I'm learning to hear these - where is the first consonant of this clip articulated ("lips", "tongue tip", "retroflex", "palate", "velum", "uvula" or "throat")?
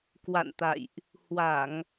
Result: velum